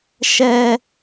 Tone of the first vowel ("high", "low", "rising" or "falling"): high